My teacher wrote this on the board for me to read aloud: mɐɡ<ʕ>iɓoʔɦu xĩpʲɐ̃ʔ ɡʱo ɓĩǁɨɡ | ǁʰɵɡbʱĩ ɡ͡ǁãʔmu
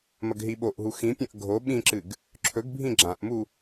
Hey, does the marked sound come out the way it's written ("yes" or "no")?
no